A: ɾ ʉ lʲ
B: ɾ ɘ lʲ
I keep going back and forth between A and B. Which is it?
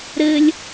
B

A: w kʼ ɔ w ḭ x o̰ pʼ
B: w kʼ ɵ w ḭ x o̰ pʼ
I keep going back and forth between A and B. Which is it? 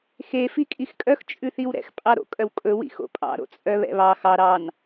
B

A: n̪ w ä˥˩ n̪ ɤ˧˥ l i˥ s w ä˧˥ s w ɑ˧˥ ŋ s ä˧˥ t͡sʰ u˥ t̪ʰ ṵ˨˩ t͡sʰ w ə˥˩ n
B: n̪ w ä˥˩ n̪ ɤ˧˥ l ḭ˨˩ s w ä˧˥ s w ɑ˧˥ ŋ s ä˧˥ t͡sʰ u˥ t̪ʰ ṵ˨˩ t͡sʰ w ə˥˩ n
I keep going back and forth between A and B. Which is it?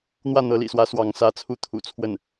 B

